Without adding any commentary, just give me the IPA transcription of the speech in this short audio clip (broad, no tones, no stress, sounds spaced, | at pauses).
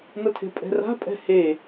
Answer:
n ʌ tʰ e̤ pʼ ɛ̤ r a̤ pʼ ɛ̤ h e